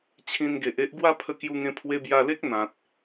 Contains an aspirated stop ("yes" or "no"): yes